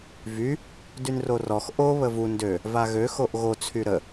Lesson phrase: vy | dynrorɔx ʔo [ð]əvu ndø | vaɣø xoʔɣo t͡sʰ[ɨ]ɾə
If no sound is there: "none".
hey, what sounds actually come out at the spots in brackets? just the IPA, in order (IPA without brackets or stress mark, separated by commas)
β, y